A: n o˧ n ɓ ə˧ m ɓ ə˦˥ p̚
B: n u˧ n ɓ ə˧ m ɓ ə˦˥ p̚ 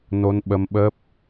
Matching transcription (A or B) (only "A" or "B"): A